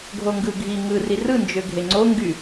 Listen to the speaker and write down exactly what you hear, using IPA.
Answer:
ɡʱ o ŋ ɡ ɯ ɡʱ i ŋ ɯ r i r ɯ n d͡ʒ ø ɡʱ e ŋ͡ǀ o ŋ ɡ y

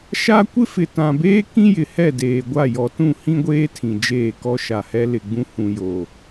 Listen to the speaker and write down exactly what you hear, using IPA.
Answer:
ʃ a˦ kʷ ɪ˦ f ɪ˨ t ã˨ b eː˦ k ĩ˦ j ɪ˨ h ɛ˦˨ d eː˨ ɡʷ a˦˨ j ɔ˨ t ũ˦˨ h ĩ˦ ɡʷ eː˦ tʰ ĩ˨ d͡ʒ eː˦˨ k ɔ˦ ʃ a˨ h ɛ˦ l ɪ˨ ɡ͡b ũ˦ h ũ˨ j o˨

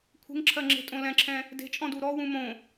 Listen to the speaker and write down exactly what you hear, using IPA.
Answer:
kʷʰ e̤ ŋ ǁʰ ɜ ŋ͡ǁ e̤ tʼ õ l ɛ̃ ǁʰ ɛ̃ | d e̤ t͡ʃʼ ɔ̃ d u ɾ ɔ w ũ m õ

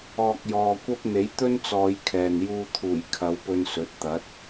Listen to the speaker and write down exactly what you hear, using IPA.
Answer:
ɔː˨ k̚ j ɔː˨ kʷ ɐ˥ p̚ n̪ e˨˥ j t̪ ɵ˥ n t͡s ɔː˨˧ j kʰ ɛː˨ n j uː˧ t̪ʰ uː˨˩ j kʰ ɐ˨˧ w p ɵ˧ n s ɵ˨˥ t̚ t̪ ɐ˨˥ t̚

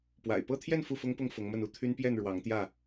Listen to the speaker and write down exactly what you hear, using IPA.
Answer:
p w a̰˨˩ ɪ̯ p ɤ˥˨ t̪ʰ j ɛ˥˨ n f u˥˨ f ʊ˦ ŋ p ʊ˥˨ ŋ f ʊ˨˦ ŋ m ə˥˨ n u˥˨ t̪ʰ y˦ n p j ɛ˥˨ n ɻ w ɑ˨˦ ŋ t̪ j ä˥˨

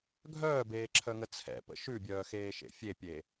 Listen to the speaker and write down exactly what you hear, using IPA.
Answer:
ɡʱ œː b eː ǁʰ œ ŋ ə t͡sʰ ɛ̰ p ə̰ ʃ ʉ bʲ œː x eː ʃ ḛ fʲ e pʲ e

